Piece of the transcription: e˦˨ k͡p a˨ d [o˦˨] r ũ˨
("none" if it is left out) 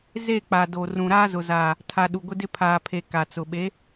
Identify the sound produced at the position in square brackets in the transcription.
o˨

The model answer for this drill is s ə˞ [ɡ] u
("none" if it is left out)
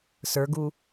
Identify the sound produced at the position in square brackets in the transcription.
ɡ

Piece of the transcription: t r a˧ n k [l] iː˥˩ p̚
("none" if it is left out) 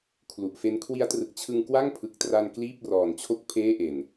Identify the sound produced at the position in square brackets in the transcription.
l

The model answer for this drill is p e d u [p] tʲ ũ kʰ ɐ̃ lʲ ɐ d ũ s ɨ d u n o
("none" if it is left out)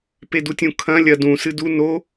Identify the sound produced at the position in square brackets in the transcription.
none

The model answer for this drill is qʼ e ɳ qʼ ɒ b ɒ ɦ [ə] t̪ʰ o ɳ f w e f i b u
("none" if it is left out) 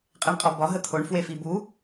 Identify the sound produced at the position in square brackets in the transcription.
ə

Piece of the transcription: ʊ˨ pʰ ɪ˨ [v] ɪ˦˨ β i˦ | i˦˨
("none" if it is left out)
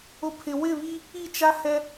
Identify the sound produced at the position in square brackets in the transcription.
w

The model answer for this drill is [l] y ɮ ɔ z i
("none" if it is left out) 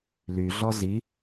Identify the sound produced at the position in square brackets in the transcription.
l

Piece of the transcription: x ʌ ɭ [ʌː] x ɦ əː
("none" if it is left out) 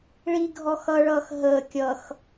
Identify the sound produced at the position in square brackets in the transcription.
ʌː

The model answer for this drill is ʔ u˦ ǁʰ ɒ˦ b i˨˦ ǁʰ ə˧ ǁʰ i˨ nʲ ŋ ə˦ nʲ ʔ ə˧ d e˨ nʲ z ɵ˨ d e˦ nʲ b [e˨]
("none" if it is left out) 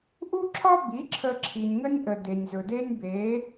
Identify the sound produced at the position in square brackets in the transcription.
e˨˦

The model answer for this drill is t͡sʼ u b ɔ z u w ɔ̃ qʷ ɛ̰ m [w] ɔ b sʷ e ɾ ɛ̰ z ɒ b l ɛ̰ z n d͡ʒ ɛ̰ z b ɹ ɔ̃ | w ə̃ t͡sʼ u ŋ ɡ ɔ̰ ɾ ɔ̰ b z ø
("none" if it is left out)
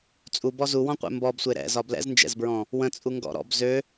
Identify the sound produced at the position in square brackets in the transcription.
b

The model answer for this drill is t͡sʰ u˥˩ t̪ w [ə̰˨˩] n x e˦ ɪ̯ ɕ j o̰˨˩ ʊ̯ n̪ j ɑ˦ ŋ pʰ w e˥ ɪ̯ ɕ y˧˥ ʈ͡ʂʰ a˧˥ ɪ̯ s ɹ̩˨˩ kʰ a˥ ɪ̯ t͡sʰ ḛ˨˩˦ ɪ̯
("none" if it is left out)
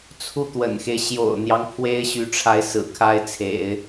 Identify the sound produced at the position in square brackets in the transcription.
ə̰˨˩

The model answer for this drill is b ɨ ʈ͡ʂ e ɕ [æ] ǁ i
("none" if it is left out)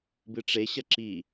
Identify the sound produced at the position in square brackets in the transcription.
ɐ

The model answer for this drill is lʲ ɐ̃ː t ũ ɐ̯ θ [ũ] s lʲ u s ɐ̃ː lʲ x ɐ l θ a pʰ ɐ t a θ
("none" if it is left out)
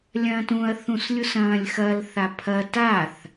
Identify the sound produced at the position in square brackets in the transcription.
ũ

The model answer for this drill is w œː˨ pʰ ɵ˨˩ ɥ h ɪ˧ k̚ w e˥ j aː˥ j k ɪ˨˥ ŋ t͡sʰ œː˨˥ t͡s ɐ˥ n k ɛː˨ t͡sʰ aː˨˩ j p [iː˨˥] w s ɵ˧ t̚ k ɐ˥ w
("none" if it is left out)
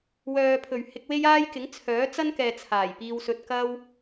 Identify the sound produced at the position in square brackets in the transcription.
iː˧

